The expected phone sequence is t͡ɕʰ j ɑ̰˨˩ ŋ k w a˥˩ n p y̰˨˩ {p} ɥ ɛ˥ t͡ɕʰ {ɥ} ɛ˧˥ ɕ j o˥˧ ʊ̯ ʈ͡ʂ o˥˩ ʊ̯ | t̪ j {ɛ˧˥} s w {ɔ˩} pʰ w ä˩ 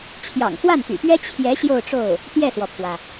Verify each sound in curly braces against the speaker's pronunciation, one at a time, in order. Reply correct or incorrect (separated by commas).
correct, incorrect, incorrect, correct